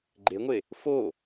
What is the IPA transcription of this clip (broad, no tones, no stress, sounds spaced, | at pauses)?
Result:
ɡ͡ǃ e ŋʷ e | f o